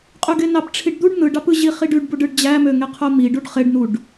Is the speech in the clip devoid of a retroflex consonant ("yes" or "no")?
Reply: no